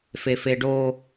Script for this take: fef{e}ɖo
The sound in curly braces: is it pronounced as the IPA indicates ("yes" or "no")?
yes